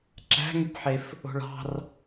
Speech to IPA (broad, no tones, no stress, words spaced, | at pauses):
ǁæ̤ŋypħef | o̤ɭɑ̤r